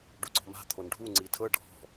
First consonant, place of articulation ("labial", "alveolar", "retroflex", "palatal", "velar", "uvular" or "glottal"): retroflex